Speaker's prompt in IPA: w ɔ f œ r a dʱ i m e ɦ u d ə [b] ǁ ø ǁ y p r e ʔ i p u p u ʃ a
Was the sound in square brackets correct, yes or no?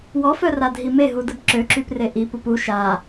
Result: yes